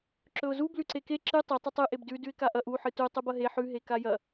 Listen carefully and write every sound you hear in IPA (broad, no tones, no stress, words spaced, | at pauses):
ǁɵʊ̯zu blʉǀeke ǁɨ tˤi tˤɨtˤɨ ʔebdʉ dʉɪ̯kaʔɐʔ u ħɨtu tˤʉbɐɦe ħʉ ɦekajɐ